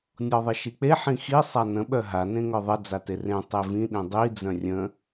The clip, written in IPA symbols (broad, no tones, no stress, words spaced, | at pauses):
nʲɔðˤəʃik͡pe ħĩxi sˤanə̃ ɓœɦa nẽŋœðˤə d͡zaterẽ tˤevĩ ɗĩdˤi d͡zœ̃rʲə̃